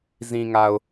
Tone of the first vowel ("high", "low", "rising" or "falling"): low